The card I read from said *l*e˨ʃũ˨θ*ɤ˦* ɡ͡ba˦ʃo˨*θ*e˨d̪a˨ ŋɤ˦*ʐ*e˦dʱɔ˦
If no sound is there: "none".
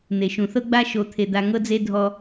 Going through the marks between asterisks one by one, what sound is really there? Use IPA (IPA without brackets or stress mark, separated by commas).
n̪, ɤ˦, t̪ʰ, d͡z